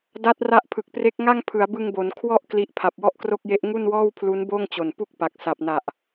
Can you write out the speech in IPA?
d a˦˥ t̚ r a˦˥ ʔ pʰ ɯ˨˩ k̚ p r e˦˥ k̚ ŋ a˥˩ ŋ pʰ ɯ˩˦ a̯ b ɯ˧ ŋ b o˩˦ n kʰ w ɔ˥˩ ʔ k l i˦˥ ʔ pʰ a˨˩ p̚ w ɔ˥˩ ʔ k r o˥˩ k̚ j e˦˥ ʔ ŋ u˥˩ n w ɔː˥˩ w pʰ l u˦˥ n b oː˥˩ ŋ t͡ɕ o˨˩ n p u˥˩ k̚ p a˨˩ k̚ s a˨˩ p̚ n a˨˩ ʔ

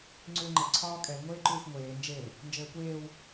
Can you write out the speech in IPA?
ŋ͡ǀ ʉ l ŋ͡ǃ ɘ ǀʰ ɒː kʼ ɛ l ŋʷ eː ǃ ʉː xʷ ŋʷ eː n d͡ʒ e l | n d͡ʒ ɘː kʷ eː w

